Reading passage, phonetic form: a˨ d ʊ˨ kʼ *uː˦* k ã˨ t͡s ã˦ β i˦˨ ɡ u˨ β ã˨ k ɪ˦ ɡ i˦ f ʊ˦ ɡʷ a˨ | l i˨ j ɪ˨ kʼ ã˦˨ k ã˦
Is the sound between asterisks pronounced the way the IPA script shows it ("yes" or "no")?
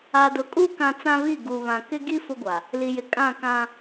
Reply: no